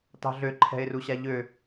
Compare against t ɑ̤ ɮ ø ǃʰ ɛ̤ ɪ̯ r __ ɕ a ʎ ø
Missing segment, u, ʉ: u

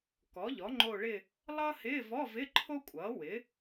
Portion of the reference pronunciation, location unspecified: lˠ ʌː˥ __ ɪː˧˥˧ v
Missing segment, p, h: h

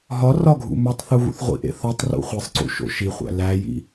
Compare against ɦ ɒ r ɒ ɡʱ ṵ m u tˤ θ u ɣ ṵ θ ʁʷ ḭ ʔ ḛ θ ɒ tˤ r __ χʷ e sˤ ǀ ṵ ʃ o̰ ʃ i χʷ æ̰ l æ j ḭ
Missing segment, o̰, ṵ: ṵ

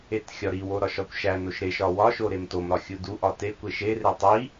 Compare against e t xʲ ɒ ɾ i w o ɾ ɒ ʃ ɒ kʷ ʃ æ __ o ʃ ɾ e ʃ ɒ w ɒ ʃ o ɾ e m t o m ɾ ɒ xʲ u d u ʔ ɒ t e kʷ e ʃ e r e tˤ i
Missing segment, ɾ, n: n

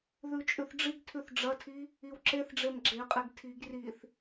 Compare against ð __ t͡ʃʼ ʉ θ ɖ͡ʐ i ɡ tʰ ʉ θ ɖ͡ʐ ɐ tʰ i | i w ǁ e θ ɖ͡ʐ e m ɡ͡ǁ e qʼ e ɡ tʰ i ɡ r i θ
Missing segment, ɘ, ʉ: ʉ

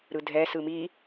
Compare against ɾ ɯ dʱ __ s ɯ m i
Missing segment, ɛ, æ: ɛ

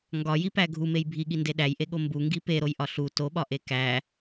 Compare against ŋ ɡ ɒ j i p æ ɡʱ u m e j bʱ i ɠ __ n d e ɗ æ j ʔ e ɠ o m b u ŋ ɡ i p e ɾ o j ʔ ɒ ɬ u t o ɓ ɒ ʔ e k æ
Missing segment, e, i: i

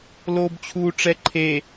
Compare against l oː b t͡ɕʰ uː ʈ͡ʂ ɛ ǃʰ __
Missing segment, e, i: e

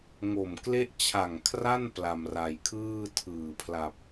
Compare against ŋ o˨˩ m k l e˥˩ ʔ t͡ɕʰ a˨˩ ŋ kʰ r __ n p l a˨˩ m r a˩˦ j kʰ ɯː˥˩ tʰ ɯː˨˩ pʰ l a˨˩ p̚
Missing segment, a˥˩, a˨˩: a˥˩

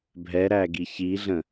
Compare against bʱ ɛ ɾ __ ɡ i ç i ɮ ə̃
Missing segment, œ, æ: æ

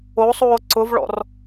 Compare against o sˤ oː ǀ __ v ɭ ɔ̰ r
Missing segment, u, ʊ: ʊ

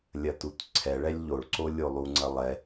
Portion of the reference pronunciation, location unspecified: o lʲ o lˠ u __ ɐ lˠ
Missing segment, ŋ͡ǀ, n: ŋ͡ǀ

